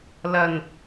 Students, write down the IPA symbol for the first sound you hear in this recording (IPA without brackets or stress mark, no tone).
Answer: l